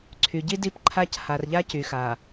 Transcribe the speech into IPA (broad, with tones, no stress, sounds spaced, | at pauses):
ǀʰ y˨ ɟ i˦ d i˦˨ p ǃʰ a˦ c h a˨ r ʎ a˦ c y˨ x a˨